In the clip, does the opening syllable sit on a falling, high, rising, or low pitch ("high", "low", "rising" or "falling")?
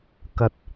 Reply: low